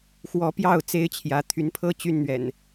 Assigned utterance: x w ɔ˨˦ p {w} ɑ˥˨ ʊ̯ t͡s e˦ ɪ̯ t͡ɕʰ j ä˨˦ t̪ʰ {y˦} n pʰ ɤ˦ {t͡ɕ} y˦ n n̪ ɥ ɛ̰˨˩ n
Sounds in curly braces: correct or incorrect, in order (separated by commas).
incorrect, incorrect, correct